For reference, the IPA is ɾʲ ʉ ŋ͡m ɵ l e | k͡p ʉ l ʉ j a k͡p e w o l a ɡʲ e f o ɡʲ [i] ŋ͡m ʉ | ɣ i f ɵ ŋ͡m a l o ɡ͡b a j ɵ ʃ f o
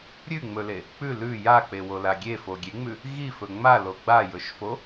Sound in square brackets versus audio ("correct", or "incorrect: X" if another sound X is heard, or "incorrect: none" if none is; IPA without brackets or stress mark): incorrect: e